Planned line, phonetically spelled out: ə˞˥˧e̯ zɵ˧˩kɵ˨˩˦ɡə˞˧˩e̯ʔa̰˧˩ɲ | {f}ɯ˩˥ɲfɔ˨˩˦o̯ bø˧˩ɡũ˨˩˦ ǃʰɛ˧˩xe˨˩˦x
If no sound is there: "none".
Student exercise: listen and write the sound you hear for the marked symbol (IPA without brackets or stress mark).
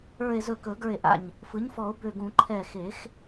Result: f